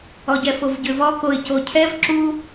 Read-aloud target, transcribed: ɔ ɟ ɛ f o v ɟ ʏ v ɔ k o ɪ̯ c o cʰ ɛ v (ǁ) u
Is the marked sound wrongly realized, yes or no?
no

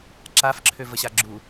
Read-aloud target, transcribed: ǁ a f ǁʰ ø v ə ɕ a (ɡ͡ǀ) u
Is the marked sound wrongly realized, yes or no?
yes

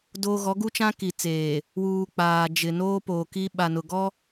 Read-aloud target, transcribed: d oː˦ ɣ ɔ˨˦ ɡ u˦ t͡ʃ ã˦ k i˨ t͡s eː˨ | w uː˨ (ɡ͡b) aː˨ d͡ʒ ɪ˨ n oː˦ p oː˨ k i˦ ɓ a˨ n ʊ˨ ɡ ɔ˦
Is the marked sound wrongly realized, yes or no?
yes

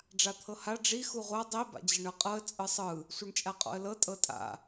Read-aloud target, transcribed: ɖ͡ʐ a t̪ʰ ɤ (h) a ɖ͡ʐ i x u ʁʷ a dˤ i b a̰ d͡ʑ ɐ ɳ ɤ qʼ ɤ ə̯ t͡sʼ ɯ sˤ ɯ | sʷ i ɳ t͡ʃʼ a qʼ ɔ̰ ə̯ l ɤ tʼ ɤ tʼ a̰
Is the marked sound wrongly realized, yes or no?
no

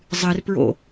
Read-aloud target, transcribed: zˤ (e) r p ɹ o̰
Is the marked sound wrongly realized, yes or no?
yes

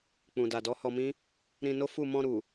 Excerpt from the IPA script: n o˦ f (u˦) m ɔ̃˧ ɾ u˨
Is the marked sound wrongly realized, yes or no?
yes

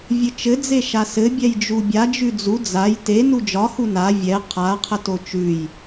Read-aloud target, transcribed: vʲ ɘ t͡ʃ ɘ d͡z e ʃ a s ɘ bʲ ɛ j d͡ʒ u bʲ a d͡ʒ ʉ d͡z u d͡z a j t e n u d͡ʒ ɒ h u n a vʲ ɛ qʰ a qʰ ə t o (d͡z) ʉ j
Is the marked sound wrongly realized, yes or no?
yes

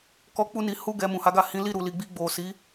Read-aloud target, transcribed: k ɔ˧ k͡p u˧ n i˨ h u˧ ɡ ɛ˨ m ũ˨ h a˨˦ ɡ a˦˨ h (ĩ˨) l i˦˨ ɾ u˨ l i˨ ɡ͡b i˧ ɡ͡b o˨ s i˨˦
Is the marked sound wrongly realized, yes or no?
yes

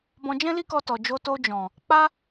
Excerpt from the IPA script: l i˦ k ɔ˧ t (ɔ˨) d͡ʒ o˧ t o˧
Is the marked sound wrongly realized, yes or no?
no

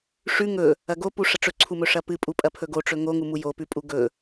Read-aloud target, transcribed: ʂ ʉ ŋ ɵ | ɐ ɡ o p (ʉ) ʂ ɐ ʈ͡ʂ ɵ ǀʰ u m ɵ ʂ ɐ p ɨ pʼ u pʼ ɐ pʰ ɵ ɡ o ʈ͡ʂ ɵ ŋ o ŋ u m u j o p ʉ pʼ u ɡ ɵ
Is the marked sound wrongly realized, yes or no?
yes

